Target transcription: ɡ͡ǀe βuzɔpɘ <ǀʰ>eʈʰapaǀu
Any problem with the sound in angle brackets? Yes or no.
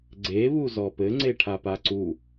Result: yes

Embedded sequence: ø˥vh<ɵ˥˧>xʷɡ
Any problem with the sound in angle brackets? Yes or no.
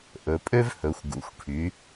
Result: yes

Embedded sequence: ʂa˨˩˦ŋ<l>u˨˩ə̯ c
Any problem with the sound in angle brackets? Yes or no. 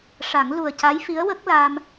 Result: no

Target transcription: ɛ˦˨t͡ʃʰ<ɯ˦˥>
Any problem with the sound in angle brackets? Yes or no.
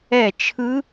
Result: no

